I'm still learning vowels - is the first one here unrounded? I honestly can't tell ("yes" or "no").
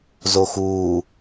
no